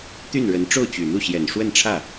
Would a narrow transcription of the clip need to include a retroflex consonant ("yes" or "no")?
yes